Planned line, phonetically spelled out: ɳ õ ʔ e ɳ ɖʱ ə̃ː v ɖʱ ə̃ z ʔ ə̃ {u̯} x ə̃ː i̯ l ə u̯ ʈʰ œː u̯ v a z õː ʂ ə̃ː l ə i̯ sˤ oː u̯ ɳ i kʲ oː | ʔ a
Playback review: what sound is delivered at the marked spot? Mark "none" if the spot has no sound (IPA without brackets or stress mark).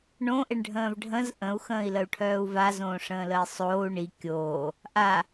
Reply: u̯